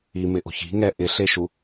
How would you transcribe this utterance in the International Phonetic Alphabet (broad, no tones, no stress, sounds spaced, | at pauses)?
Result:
i m ɪ ʔ o̤ ç i̤ ŋ ɛ ʔ ɪ ɬ e ʃ u